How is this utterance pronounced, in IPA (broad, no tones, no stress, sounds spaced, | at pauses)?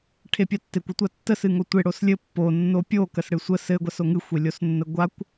ʈʰ e pʲ a tː e kʷ ə tʷ a tː ə s ɨ ŋ o tʷ e ɽ o s lʲ ɘ pː o nː o pʲ o k ə s ɽ ɨ sʷ ə s ɘ ɡʷ a s o ŋ ɨ xʷ e lʲ o s nː ə ɡʷ a kʷ